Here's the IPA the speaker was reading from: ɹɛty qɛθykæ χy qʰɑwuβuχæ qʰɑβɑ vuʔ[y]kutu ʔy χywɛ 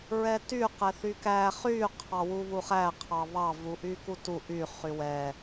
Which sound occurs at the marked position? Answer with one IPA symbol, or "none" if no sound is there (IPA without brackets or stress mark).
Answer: y